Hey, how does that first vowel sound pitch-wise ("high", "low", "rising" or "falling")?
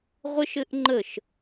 high